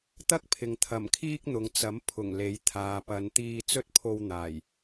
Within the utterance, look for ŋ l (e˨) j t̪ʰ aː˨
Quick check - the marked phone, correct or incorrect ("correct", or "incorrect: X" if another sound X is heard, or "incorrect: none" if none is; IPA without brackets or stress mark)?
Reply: incorrect: e˨˥